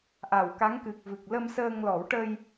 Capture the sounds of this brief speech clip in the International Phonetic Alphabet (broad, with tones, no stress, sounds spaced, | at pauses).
ʔ a˨˩˨ w k a˧˥ ŋ k ɨ˨˩ k̚ v ɨ˨˩ k̚ l ə˧ m s əː˧ ŋ l ɔ˨˩˦ w ʈ ə˧ j